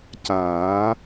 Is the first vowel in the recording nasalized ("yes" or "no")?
no